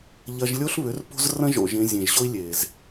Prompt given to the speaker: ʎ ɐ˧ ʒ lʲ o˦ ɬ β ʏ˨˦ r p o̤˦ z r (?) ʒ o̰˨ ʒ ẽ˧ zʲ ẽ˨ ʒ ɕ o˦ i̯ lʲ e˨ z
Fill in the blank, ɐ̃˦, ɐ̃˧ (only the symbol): ɐ̃˦